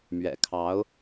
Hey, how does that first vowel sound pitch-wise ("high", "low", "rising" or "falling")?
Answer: low